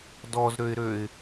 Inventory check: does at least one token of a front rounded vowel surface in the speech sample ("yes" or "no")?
yes